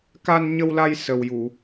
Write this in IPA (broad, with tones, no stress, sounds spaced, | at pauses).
k a˧ n ɲ ə˧ w l a˧ j s ə˨˩ w j u˨˩˨